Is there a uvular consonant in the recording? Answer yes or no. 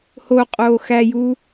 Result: yes